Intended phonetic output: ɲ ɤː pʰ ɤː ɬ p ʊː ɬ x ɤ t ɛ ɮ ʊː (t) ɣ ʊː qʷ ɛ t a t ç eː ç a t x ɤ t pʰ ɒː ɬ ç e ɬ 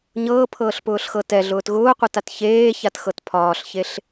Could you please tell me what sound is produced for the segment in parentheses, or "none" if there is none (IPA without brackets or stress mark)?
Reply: t